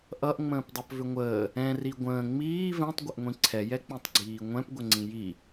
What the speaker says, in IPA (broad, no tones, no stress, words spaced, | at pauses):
ʔʌʔŋ͡mə̃ːpdˤʌpvʏ ŋʷəː | ɛ̃ri ɡʷə̃ː ŋ͡miː vɛ̃tˤɡʷəʔŋʷĩ ǀʰɛjɛk͡pĩtˤɡ͡ǀiː ŋʷɛ̃pɡʷəŋ͡ǀĩ ji